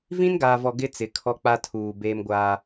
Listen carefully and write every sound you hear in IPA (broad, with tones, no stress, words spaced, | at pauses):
vĩ˦nɡaː˨vɔ˨ ɡɪ˦ t͡sɪ˨kʰɔ˦k͡pa˦ tʰuː˨ beː˦mɡʷaː˦